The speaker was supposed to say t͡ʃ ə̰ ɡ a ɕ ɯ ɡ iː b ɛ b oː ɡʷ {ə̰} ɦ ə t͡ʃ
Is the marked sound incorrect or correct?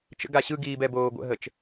correct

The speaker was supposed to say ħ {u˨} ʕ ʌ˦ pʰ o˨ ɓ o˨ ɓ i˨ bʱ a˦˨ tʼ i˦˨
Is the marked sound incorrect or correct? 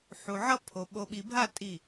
correct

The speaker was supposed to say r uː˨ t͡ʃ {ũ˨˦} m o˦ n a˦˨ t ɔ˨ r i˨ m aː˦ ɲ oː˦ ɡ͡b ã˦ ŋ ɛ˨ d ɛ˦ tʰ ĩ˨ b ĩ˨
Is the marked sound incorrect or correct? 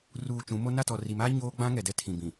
correct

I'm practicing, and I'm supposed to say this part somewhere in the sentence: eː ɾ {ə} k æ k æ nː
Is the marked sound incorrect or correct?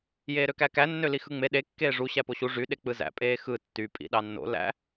incorrect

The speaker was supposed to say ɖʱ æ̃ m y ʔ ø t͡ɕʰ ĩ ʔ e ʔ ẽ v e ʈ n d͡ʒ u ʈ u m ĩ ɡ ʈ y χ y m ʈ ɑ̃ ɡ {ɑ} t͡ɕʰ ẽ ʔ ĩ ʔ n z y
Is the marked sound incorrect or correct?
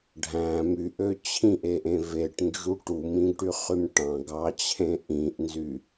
correct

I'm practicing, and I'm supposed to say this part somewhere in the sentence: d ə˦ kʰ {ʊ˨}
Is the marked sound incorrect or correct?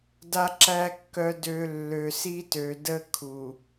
incorrect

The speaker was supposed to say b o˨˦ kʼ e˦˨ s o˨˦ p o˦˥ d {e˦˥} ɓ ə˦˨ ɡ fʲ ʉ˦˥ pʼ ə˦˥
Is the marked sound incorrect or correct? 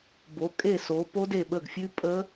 incorrect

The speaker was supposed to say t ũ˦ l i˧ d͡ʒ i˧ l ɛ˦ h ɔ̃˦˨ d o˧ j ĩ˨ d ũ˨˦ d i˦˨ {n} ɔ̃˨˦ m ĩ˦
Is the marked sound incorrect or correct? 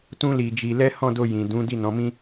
correct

